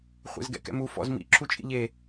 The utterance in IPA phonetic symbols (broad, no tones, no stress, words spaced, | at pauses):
χʷḛzɡɛ̰kɛ̰mu fɔ̰z mḭ ǁʰut͡ʃʼḭʎe